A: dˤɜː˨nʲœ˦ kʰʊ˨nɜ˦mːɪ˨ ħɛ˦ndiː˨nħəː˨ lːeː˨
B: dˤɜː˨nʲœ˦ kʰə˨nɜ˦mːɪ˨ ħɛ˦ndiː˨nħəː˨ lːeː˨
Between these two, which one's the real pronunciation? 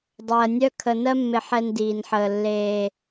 B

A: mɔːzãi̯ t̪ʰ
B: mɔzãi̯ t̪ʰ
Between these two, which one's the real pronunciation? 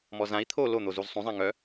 B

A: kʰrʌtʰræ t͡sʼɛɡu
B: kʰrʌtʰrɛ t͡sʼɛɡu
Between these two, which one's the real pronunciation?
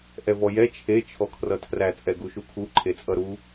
A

